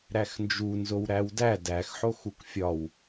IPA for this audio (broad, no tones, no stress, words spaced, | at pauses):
ɾæxnd͡ʒu nzowɾæwdæ dæx ħoxukfʲɒw